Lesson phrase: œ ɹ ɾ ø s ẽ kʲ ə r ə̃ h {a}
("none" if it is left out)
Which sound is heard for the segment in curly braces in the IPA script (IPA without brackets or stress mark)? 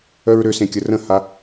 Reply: a